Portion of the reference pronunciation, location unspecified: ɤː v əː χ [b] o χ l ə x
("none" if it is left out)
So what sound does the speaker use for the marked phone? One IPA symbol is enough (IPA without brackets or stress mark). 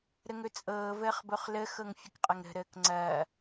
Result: b